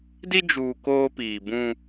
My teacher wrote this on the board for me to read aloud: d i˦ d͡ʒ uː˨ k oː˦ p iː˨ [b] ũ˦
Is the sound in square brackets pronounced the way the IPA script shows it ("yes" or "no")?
yes